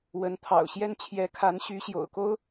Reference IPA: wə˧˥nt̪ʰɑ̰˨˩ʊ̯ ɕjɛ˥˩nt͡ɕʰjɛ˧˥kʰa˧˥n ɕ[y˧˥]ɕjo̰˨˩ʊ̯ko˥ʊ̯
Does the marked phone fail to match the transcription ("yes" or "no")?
no